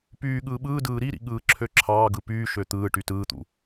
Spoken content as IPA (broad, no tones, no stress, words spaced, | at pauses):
pyː ɠɯːɓɯːdɯː ɾiɾḭ ɠɯːǁʰøǁʰɑːɡɯ pyːʃø t̪ɯːʈy tɯːt̪ṵ